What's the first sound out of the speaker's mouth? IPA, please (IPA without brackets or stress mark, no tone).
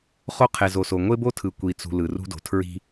χ